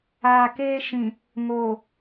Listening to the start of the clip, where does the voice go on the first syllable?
low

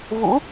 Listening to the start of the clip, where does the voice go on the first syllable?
rising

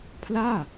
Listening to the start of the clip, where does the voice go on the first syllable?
falling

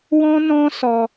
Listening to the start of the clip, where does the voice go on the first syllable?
high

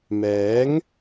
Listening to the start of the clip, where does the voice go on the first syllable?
rising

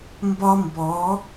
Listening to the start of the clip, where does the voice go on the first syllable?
high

